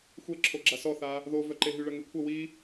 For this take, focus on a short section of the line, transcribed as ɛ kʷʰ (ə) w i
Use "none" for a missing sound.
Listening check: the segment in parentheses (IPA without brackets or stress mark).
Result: ə